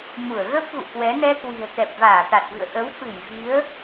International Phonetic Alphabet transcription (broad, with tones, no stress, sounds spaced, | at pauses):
m u˧˩ ə̯ ɣ ə˦˥ p̚ ɣ ṵ˧˨ k w ɛ˨˦ n ɛ˧ k w i̤˨˩ ə̯ t̪ ɛ˨˩ p̚ v aː˧˩ t̪ a˨˩ t̚ v ɨ̰˧˨ ə̯ ʔ ə˨˦ w f ɨ˧˩ j v i˨˦ ə̯